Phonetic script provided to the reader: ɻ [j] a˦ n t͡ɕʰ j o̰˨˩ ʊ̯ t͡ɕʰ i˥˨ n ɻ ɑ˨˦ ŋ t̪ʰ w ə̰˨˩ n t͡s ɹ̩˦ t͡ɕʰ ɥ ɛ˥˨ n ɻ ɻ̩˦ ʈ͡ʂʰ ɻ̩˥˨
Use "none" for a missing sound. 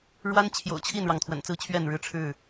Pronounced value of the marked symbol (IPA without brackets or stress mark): w